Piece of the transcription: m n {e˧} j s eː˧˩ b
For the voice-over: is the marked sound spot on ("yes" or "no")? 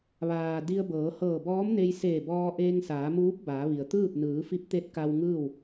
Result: yes